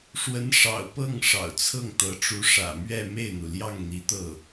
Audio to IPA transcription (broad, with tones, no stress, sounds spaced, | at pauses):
ʂ w ə˧˥ n ʂ ɑ̰˨˩ ʊ̯ p ɤ˥˩ ŋ ʂ ɑ̰˨˩ ʊ̯ t͡sʰ ɤ˥˩ ŋ t̪ ɤ˧˥ ʈ͡ʂ u˧˥ ʂ ä̰˨˩ m ɥ ɛ˥˧ m e˥˩ ɪ̯ n̪ u˩ l j ɑ˥˩ ŋ n̪ i˧˥ t̪ ɤ˥˩